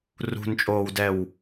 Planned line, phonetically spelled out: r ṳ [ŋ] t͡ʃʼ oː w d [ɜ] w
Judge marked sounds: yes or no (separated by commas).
no, no